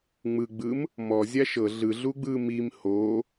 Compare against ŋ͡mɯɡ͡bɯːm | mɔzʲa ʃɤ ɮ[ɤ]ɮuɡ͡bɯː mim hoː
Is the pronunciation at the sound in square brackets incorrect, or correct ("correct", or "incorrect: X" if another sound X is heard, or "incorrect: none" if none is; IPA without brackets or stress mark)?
incorrect: ɯ